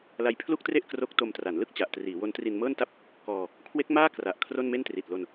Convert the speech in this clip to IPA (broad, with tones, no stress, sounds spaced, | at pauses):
l a˧ j pʰ l u˥˩ k̚ t r e˥˩ ʔ k r o˦˥ k̚ t o˧ m t r a˩˦ n l ɯ˥˩ k̚ t͡ɕ a˨˩ ʔ t r iː˩˦ w o˦˥ n t r i˧ n m ɤː˥˩ n t a˥˩ p̚ | k ɔː˧ | kʰ w e˦˥ k̚ m aː˥˩ k r a˨˩ ʔ kʰ r o˥˩ n m e˥˩ n t r i˨˩ t̚ l o˧ n